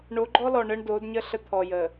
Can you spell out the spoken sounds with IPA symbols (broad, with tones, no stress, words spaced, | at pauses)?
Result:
ɳo˨˦ɡ͡ǃɔ˦ lɔ˨ɳə˦ɳdo˨˦dɲə˦ ɬə˦t̪ʰɔ˨jə˨